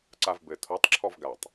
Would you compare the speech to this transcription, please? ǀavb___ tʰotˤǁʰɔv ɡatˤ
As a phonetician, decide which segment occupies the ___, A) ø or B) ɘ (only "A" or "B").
B